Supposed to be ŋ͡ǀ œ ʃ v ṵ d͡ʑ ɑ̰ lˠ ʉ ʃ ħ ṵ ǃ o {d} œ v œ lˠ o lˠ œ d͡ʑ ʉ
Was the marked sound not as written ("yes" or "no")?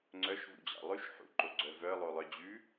yes